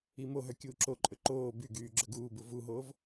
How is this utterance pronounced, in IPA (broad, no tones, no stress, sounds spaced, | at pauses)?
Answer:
i m o ɦ œ kʲ uː ǁ o ǃʼ ɵ ǃ oː b y ɡ yː ɡ͡ǁ ɵ ɡ uː b u v u ɦ oː v